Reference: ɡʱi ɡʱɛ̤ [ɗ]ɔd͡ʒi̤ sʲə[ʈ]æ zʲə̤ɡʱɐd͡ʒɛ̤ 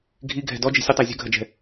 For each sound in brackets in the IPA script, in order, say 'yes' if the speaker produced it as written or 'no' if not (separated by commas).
no, no